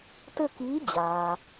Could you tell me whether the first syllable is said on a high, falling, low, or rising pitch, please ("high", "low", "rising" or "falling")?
falling